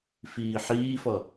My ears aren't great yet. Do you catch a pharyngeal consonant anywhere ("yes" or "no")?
yes